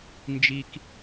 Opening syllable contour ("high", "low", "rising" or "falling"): high